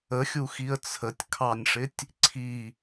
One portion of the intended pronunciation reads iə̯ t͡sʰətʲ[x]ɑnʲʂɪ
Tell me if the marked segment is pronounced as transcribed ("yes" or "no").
no